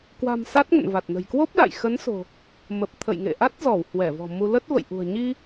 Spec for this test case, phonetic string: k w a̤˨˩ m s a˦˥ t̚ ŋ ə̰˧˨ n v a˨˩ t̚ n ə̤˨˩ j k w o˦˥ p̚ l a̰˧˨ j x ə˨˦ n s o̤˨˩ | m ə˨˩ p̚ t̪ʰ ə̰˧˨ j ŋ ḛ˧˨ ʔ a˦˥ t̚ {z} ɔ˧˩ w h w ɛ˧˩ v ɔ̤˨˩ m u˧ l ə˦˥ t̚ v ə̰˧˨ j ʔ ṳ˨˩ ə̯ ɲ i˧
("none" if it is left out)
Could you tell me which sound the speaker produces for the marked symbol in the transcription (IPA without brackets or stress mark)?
z